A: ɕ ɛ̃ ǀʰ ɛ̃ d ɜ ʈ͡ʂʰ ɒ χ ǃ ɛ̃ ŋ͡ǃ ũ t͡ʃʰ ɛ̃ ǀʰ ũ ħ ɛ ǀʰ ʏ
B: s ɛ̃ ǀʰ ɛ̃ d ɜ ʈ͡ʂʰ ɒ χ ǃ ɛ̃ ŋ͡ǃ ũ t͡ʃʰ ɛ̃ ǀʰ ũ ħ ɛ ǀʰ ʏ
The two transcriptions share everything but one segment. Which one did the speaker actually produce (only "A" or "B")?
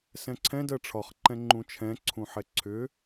B